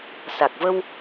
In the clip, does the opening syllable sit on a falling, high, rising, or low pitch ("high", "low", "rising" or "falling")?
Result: low